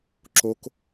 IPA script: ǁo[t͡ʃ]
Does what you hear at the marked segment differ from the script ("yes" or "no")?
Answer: yes